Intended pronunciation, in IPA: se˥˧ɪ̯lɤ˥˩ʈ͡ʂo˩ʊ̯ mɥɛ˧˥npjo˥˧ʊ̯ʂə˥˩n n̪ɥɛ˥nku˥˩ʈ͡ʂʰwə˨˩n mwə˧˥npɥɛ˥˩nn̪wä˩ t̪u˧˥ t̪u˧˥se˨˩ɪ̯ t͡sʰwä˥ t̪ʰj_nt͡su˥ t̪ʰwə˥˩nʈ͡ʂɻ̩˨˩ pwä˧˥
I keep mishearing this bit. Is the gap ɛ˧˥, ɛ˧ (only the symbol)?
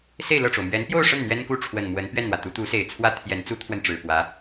ɛ˧˥